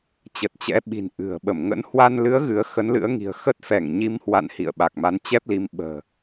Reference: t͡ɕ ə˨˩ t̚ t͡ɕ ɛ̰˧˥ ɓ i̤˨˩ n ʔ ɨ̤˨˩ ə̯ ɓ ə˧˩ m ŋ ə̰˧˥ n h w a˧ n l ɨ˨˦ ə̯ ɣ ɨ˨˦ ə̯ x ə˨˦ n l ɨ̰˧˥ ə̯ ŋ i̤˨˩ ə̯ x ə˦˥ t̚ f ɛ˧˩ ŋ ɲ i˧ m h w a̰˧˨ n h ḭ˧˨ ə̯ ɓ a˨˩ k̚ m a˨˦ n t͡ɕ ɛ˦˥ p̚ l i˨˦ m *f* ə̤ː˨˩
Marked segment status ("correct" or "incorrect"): incorrect